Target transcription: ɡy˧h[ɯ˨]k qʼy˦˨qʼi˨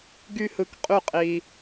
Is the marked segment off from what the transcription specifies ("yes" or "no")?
no